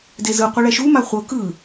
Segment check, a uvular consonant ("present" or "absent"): present